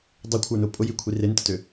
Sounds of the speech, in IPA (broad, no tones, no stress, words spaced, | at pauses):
dˤekʷʰə˞nʊ pʼʊjikʷʰi rentətø